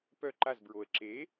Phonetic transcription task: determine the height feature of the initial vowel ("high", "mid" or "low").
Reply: mid